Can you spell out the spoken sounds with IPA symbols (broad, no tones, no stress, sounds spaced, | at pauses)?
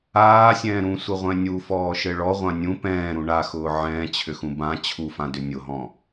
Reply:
aː sʲ ɛ̃ː ɾ ũ sʷ ɘ ʁʷ ɛ̃ nʲ u f ɔː ʃ ɘ ɭ ɔ ʁʷ ã nʲ ũ p ɛ̃ː ɾ ũ ɳ a x ʊː ʕ ɛ̃ː t͡ɕʰ ʏ x ũ b ã t͡ɕʰ u f ã d ʏ nʲ ʊ ɦ ɔ̃